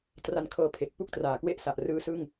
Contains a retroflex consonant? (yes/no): no